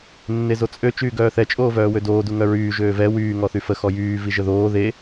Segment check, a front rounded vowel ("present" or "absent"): present